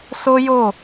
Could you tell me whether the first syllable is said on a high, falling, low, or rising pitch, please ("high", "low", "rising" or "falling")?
high